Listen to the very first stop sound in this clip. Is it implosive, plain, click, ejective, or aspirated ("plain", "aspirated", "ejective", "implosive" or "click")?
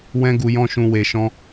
plain